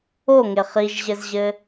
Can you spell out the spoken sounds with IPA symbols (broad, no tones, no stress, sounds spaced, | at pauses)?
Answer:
o ŋ e χ i ʒ ʑ ɘ z ʑ ɘ